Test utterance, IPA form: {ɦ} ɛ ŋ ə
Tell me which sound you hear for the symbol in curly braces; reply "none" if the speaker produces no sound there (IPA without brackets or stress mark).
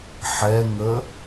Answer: ħ